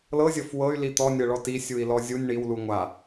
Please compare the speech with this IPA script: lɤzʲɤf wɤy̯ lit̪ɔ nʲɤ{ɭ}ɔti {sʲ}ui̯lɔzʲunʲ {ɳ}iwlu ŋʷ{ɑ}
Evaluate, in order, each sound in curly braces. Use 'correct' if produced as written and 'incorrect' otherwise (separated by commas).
correct, correct, correct, incorrect